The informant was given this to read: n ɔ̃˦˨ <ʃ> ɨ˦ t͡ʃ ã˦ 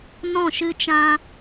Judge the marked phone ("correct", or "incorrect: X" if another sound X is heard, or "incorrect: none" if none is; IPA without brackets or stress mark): correct